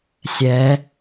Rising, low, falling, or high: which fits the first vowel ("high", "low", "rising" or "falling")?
rising